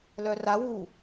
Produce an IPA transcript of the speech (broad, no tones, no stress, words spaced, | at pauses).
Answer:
lœra wu